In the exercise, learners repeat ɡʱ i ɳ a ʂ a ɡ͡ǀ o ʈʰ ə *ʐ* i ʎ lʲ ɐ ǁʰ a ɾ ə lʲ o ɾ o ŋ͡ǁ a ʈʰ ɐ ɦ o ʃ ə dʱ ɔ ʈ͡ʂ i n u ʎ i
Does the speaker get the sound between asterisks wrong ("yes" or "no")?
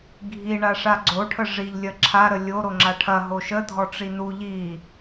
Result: no